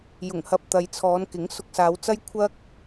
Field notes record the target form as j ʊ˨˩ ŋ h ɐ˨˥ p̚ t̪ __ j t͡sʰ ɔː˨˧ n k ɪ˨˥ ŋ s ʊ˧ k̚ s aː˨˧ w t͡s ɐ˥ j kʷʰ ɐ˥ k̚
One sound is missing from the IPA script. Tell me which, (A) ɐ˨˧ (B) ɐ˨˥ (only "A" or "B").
A